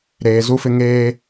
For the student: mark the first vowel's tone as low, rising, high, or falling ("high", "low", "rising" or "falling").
low